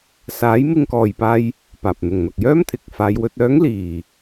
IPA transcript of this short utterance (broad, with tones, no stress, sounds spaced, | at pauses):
s aː˨˥ j m ɪ˧ ŋ k ɔː˨ j p aː˧ j | p aː˨ p̚ n̪ ʊ˨ ŋ n̪ ɐ˨ k̚ j œː˥ m t̪ʰ ɪ˨ k̚ f aː˨˧ j w ɵ˧ t̚ œː˨˥ ŋ l iː˨˩